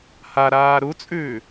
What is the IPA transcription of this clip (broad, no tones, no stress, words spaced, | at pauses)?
haɾaː ɾut͡sʼʉː